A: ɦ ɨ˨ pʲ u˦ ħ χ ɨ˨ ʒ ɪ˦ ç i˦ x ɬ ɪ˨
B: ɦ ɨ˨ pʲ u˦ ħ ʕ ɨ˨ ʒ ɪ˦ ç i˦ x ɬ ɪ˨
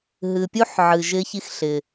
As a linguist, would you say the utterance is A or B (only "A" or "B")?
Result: B